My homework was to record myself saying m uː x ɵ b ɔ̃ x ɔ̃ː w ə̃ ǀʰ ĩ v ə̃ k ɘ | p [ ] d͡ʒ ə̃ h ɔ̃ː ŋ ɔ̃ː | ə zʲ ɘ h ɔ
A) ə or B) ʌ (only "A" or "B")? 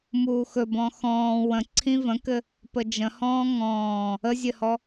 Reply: A